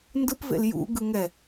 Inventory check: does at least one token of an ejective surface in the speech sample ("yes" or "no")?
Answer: no